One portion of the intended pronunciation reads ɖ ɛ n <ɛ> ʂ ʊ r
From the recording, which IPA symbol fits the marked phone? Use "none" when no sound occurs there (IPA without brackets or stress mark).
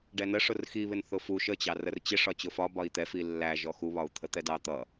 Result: ə